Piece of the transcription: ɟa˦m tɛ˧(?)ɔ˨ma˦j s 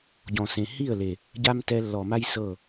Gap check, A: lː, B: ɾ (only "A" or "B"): A